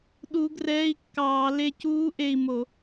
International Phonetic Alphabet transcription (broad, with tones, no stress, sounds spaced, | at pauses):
ɗ u˨˦ ɡ r ɛː˧˥˧ i̯ kː ɑː˧˩˧ l e˦˨ c uː˦˥ ʔ e˦˨ i̯ m o˧˩˧